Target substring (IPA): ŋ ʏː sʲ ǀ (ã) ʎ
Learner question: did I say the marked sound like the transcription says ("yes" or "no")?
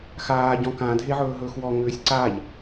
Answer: no